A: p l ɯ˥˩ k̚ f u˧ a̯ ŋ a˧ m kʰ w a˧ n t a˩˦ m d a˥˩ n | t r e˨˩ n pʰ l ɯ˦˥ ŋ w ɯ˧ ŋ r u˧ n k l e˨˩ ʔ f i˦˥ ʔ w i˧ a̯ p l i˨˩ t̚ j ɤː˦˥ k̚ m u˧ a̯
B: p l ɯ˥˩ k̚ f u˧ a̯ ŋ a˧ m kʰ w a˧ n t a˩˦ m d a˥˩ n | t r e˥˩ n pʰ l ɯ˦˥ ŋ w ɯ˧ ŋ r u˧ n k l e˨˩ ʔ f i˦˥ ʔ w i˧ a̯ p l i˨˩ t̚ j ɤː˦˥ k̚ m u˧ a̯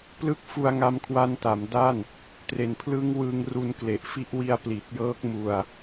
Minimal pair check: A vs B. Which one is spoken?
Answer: A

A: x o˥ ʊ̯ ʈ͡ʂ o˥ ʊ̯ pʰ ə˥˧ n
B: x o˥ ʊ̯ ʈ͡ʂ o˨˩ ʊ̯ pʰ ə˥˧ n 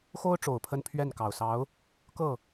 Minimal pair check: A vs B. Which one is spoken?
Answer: B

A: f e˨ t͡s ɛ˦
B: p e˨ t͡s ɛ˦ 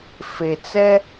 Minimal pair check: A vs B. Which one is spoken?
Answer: A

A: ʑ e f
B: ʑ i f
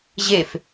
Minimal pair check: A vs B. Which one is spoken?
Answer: A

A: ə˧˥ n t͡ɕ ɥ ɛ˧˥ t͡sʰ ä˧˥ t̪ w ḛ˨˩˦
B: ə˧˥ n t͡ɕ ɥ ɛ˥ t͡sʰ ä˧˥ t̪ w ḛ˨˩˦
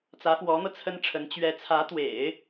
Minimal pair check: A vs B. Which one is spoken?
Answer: A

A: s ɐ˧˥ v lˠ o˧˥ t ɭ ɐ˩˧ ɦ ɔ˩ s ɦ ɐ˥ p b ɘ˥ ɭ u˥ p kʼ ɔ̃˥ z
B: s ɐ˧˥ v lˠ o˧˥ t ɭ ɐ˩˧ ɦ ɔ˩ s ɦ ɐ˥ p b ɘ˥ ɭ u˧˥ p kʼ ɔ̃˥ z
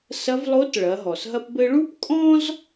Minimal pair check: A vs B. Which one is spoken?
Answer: A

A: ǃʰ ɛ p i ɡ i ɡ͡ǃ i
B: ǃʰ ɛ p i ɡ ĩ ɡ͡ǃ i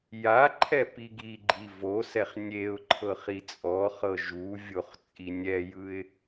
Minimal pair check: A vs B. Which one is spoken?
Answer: A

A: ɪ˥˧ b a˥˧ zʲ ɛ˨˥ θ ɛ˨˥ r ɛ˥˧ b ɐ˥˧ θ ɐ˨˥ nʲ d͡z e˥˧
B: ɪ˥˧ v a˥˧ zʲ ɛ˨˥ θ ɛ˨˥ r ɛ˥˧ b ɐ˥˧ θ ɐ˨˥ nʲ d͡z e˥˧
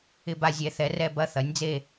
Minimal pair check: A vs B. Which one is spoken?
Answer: A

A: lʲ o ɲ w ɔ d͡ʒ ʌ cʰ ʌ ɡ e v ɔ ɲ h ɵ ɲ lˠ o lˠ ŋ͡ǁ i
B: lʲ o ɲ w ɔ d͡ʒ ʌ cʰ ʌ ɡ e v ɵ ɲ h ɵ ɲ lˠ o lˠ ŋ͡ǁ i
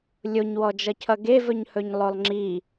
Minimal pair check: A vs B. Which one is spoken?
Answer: B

